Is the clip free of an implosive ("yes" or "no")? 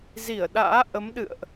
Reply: no